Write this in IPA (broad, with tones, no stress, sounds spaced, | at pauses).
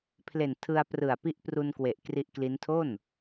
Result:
pʰ l e˨˩ n tʰ ɯ˧ a̯ p r ɯ˨˩ a̯ p i˦˥ ʔ p r u˧ n k w e˨˩ ʔ k r i˦˥ ʔ k l i˦˥ n tʰ o˥˩ n